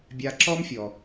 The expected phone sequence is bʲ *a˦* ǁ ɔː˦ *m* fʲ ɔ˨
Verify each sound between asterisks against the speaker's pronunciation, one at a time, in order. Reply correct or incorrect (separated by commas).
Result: correct, correct